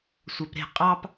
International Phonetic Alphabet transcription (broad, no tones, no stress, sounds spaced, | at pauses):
sʷ œ p ɾ e̤ qʼ ɑ p